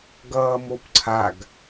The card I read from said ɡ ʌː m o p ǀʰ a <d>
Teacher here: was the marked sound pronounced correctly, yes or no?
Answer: no